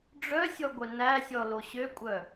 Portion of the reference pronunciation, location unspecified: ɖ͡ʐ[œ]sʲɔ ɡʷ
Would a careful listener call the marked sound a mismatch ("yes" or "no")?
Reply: no